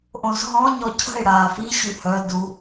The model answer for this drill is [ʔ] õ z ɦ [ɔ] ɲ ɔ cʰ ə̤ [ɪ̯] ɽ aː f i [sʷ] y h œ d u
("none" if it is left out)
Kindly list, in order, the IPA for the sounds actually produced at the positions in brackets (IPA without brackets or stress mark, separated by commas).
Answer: ʔ, ɔ̃, ɪ̯, ɕ